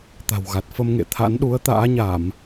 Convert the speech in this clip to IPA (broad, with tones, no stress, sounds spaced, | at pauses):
t̪ a̤˨˩ w ɣ a˨˩ t̚ f ə˧ m ŋ ḛ˧˨ t̪ʰ a̰˧˥ n ɗ u˨˦ ə̯ t̪ a̰ː˧˥ ɲ a˧˩˨ m